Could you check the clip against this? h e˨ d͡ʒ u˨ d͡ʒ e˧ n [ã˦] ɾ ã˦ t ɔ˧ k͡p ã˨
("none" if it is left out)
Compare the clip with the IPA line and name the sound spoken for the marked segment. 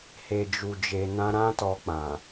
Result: ã˦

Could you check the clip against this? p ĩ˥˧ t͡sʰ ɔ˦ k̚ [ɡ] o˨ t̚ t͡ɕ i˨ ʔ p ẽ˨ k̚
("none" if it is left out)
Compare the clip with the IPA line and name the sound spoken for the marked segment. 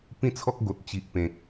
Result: ɡ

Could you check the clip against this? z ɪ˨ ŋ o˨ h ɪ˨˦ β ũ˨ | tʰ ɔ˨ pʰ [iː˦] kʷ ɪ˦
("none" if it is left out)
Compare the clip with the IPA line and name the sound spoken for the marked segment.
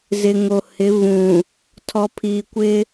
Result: iː˨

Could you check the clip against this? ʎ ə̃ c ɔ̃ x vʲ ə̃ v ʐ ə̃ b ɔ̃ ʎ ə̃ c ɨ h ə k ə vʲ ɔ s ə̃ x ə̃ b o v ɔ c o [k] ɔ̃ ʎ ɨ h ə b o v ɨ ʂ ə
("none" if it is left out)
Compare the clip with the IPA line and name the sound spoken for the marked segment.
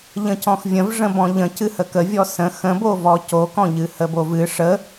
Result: k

